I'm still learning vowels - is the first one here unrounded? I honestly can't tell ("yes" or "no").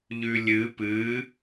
no